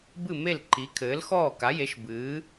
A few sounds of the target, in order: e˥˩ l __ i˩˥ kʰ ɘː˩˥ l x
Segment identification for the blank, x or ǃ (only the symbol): ǃ